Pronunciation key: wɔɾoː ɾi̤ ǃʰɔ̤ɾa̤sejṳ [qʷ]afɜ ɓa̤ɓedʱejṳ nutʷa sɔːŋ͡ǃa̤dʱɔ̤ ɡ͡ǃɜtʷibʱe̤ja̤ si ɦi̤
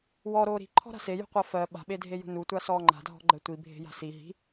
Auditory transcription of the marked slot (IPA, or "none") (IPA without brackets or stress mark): qʷ